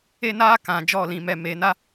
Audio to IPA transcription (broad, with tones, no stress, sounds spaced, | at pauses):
e˦ n aː˦ k ã˨˦ d͡ʒ ɔ˦˨ l ĩ˧ m ɛ˧ m e˨˦ n a˦